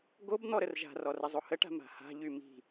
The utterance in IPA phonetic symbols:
ɡ o b n̪ ɔ ɾ ə r ʒ a̤ r ɔ r ə zˤ o h ə ʈ a̤ m a̤ h a̤ ʎ y m i̤

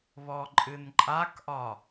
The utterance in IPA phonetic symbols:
β ɔ ǃʼ ɨ n ǃʼ a k ʔ ɒ

